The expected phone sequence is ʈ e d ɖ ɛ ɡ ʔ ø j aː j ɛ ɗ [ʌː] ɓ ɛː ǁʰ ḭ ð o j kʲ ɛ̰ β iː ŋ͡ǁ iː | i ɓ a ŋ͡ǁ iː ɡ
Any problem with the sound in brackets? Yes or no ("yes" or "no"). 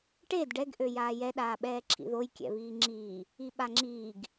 yes